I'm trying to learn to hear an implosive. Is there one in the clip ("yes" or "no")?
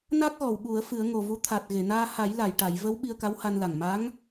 yes